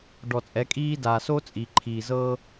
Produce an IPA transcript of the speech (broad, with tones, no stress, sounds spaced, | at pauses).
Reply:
ɖ ɔ˨ t͡sʼ ɛ˨˦ kʼ iː˦ d aː˨ s o˦ t͡sʼ i˨ ǃʰ iː˨ z ɤ˦